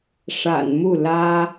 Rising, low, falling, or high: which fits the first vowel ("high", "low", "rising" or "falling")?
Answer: low